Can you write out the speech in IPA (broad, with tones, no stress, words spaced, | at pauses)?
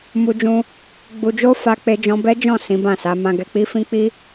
mu˧d͡ʒũ˧ | ɡ͡bu˧d͡ʒo˦ fa˦k͡pe˦d͡ʒɔ̃˦ bɛ˦d͡ʒɔ̃˦˨ sĩ˨˦bã˦˨sa˨˦ mã˧ɡɛ˧k͡pi˦ fĩ˦k͡pi˦